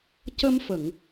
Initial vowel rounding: unrounded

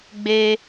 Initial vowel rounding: unrounded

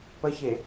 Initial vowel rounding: unrounded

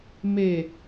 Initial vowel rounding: unrounded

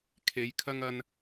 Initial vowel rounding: unrounded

